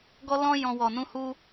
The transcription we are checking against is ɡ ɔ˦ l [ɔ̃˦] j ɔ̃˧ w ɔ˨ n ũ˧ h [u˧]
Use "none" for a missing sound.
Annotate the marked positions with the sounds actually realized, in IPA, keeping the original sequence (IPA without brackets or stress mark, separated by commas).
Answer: ɔ̃˦, u˦